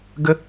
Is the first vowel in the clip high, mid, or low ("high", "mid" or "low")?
mid